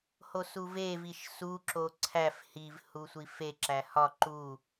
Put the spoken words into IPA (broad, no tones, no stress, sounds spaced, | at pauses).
h o s u v e v i ʃ s u ǁ o ǀʰ æ f h i v h u sʷ i f e ǁ æ h ɒ ǃ u